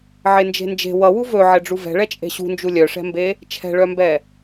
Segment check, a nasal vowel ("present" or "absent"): absent